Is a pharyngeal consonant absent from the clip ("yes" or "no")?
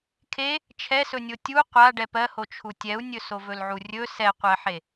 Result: no